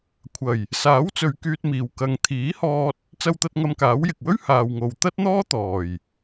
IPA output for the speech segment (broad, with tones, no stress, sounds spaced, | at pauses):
kʷʰ ɐ˨˩ j | s aː˨˥ w t͡s ɵ˨ ɥ k yː˧ t̚ m iː˨ w k ɐ˨ ŋ t̪ʰ iː˨˥ h ɔː˧ t̚ | t͡s ɐ˧ w t̪ ɐ˧ t̚ ŋ ɐ˧ m k aː˨˥ w j ɪ˨ k̚ w ɵ˥ ɥ h aː˨ w ŋ o˨ w t̪ ɐ˥ t̚ n̪ ɔː˥ t̪ ɔː˨˩ j